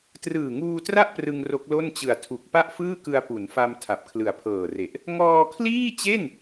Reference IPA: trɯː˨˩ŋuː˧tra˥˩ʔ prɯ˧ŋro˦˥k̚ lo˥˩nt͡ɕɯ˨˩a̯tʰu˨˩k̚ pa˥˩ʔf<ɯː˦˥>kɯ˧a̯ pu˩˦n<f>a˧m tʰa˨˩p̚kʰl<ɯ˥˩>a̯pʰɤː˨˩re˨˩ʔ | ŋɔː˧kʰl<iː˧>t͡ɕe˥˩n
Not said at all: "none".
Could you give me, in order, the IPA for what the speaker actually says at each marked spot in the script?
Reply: ɯː˥˩, f, ɯ˨˩, iː˥˩

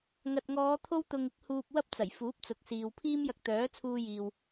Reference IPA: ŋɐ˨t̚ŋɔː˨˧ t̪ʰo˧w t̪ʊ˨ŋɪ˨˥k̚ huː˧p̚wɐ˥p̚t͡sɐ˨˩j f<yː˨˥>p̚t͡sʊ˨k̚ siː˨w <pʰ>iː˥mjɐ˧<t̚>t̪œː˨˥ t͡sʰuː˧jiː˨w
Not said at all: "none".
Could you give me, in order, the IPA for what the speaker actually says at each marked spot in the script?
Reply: uː˨˥, pʰ, k̚

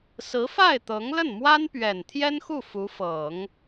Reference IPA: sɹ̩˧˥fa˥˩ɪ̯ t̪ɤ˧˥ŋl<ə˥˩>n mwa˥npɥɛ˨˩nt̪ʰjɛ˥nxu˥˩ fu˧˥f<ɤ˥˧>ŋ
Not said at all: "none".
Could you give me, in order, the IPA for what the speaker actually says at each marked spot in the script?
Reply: ə˥˩, ɤ˨˩˦

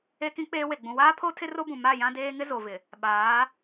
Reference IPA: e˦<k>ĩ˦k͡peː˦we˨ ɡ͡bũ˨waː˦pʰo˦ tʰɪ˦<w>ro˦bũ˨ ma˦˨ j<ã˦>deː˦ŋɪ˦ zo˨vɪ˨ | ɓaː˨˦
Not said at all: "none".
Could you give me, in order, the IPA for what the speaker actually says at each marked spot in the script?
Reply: k, none, ã˦

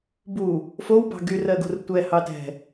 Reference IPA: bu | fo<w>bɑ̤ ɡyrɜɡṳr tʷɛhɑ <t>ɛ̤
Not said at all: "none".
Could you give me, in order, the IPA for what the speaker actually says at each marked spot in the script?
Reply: w, t

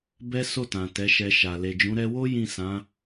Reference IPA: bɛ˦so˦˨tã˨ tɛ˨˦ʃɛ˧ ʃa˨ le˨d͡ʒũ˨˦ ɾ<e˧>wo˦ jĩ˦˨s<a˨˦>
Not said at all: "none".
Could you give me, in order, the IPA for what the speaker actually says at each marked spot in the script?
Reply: ɛ˧, ã˨˦

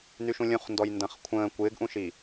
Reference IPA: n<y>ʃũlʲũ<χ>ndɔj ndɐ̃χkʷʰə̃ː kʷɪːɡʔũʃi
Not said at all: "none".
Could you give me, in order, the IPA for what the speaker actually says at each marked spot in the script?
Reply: y, χ

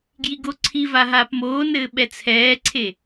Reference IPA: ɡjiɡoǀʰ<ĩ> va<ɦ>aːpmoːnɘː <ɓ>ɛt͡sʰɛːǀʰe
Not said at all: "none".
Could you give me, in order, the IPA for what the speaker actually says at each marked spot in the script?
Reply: i, ɦ, ɓ

